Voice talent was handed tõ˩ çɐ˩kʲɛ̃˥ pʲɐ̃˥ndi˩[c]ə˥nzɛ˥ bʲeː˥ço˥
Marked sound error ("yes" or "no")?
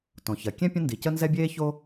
no